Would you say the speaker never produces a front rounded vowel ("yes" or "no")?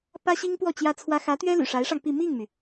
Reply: no